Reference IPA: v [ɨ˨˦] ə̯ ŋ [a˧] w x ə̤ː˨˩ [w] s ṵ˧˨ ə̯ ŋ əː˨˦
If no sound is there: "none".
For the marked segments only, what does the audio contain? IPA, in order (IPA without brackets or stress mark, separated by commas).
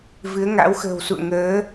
ɨ˨˦, a̰˧˥, w